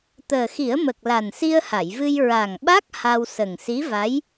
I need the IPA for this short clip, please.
t̪əː˨˩xi˨˩˦ə̯mə˨˩k̚ la˨˩nsi˧ə̯ha˨˩˨jvɨ˧j ɹa˨˩ŋɓa˦˥k̚ ha˧w sə˨˩ŋsi˧˥va˧˥j

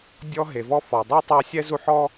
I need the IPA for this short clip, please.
dʲɔ˦ ɦe˩vɔ˥ fɔ˩dˤi˥ tˤa˥ sʲɛ˥zu˦ħɔ˥

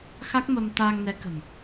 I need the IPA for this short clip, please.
xa˦˥k̚mə˧m t̪aː˧ŋnɛ˨˦kə̤˨˩m

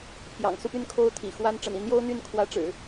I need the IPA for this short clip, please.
pʰjɑ̰˨˩ŋsu˥˩py˥n kʰo˥ʊ̯t̪ʰḭ˨˩xwa˥n ʈ͡ʂə̰˨˩ni˧˥njo˥ʊ̯n̪y˥˩n kʰwä˧˥ʈ͡ʂɻ̩˨˩˦

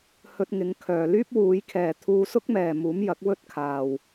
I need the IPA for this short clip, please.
hɵ˧t̚ŋɪ˨˧ŋkʰœː˨ lyː˥p̚wuː˨˧jkʰɛː˨ t̪ʰuː˧sʊ˥k̚ mɛː˨muː˨˥m jɐ˨˥k̚wɵ˥t̚kʰaː˨w

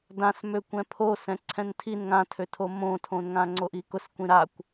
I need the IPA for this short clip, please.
dãsmø kʷɛ̃pʰo sɛ̃ǀʰɛ̃ntʰin ŋãtʰøtʰo mõtʰõnŋã ŋ͡ǀoʔikʊs kʷĩɾakʷ

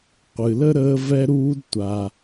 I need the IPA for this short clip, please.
qʷɨ˨lə˥ ɾəː˦vɛ˦ɾuː˦d tʷa˨

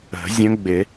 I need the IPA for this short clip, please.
ə̤˨˩˦zʲə̃˧˥ɡ͡bɪ˨˩˦

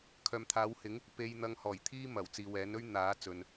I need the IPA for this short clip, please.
kʰœː˨mt̪ʰaː˨˥whɪ˨˥ŋ | pe˧j n̪ɐ˧ŋhɔː˨˩jt̪ʰiː˥ mɐ˨˩wt͡siː˨wɛː˨˥nɵ˥ɥ n̪aː˨˥t͡sɵ˨n

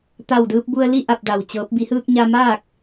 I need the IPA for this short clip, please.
t̪a˧˩wdɯː˧p̚bu˧ə̯li˥˨ ʔa˥˨p̚da˧˩wt͡ɕɤː˧˥p̚ bi˩˧hɯː˧k̚ɲa˧ maː˥˨k̚

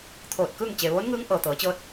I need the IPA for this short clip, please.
t̪ʰoː˧˩t̚kɯː˥˨ŋ t͡ɕe˩ʋoː˧˥nŋɯː˧˥ŋ ʔɤː˩t̪ɤː˩˧t͡ɕɤː˧˥t̚

